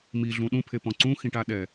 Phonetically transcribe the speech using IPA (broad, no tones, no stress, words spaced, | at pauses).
miɮũ ɗũpʰepɔ̃ ǀũxĩʈaɗɛ